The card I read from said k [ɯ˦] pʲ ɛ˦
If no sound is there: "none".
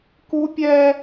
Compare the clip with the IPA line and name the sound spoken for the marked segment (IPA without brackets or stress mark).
u˦